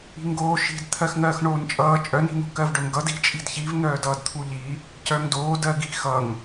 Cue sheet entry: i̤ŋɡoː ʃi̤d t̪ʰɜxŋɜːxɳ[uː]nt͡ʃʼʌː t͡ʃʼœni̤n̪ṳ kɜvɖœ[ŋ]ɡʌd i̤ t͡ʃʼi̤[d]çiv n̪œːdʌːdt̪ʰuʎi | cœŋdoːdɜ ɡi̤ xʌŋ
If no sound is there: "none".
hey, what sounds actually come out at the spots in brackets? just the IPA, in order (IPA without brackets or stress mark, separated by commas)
oː, ŋ, d